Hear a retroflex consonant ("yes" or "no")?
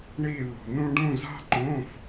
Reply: yes